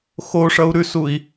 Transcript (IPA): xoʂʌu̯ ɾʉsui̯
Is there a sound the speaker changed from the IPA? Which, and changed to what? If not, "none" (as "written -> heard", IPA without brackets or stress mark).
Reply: none